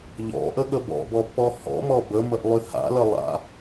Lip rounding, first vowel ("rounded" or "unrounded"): rounded